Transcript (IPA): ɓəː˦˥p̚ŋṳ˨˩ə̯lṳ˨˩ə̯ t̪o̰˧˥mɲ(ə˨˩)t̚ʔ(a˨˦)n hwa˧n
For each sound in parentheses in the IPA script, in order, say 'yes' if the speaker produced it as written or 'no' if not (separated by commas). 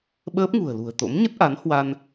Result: no, yes